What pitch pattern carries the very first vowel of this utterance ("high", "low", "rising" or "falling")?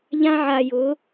high